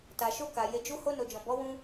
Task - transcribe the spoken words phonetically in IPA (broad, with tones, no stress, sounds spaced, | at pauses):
t a˨ ʃ o˧ k a˨ j e˧ d͡ʒ u˦ h o˧ n o˨ d͡ʒ ɔ̃˨ b ɔ˨˦ w ũ˧